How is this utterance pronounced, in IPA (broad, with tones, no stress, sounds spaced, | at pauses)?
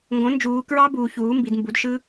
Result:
ŋ ɡ õ˩˥ n d͡ʒ uː˩˧ k ɹ ɑ˦˥ b uː˩˧ ç uː˩˥ m b i˩˧ d m b u˩˥ d ʃ ɯ˦˥